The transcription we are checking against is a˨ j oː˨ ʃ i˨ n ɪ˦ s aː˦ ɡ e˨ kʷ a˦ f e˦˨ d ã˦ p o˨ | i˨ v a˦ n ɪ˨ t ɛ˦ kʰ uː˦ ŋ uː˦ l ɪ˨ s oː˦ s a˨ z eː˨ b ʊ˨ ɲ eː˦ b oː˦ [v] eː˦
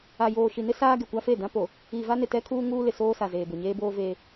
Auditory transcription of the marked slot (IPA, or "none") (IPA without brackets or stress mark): v